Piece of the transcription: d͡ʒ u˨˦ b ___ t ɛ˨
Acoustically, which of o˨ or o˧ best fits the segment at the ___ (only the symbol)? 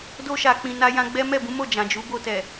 o˧